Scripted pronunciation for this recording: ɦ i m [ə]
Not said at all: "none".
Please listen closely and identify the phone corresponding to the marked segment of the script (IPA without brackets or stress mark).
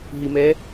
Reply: ɛ